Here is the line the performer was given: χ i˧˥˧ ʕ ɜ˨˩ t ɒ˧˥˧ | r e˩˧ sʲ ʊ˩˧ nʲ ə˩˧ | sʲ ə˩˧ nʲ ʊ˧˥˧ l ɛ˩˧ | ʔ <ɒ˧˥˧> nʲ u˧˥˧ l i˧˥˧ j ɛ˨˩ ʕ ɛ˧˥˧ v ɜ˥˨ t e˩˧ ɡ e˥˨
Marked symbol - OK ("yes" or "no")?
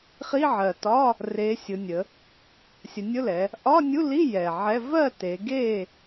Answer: yes